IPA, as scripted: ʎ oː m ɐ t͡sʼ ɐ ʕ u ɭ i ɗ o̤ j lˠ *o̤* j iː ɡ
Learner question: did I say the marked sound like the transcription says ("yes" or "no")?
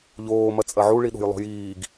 yes